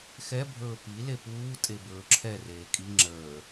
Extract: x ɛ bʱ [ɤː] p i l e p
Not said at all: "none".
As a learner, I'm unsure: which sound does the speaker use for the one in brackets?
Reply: ɵː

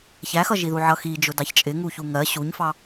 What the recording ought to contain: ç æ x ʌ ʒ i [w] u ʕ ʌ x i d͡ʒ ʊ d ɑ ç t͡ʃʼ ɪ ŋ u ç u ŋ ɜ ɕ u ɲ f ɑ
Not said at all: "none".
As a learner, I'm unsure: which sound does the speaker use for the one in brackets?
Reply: ð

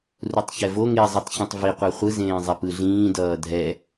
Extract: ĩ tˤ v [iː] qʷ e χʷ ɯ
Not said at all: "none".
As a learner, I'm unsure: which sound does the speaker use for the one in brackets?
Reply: i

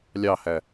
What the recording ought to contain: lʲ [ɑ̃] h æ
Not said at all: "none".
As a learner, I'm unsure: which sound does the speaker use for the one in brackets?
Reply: ɑ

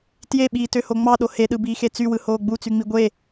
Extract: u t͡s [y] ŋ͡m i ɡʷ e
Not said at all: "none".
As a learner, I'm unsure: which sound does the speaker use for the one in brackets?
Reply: y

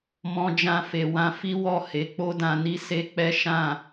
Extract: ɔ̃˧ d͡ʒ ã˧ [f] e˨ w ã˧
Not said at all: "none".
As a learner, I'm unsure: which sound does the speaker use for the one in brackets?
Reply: f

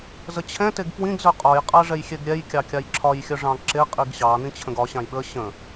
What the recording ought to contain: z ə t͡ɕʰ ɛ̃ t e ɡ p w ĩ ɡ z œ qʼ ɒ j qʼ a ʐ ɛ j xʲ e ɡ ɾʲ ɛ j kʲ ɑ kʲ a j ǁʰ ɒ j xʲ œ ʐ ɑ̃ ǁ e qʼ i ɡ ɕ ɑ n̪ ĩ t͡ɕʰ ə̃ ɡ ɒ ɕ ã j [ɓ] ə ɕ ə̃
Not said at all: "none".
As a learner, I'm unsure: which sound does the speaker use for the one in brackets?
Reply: ɓ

